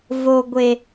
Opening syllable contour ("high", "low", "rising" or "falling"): low